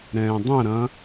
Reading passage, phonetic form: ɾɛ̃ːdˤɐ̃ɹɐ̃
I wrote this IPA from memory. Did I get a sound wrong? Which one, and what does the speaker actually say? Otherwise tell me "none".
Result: ɹ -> ɾ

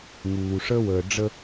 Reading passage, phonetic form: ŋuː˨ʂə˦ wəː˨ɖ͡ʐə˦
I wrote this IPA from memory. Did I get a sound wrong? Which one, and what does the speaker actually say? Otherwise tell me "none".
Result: none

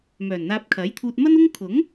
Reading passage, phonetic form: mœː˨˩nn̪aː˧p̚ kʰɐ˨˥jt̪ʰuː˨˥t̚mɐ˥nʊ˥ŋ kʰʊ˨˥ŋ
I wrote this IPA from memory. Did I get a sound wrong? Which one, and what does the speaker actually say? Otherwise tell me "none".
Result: uː˨˥ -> uː˧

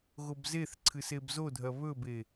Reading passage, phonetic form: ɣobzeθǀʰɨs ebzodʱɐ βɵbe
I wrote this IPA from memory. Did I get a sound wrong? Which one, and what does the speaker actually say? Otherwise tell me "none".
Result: none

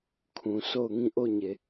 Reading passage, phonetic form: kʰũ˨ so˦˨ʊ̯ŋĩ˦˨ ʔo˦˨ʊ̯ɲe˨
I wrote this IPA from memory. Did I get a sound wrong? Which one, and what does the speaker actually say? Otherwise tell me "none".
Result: none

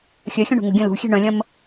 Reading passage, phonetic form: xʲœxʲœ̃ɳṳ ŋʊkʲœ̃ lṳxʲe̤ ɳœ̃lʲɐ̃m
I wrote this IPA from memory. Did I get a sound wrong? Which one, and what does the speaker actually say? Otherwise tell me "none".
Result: kʲ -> ɡʲ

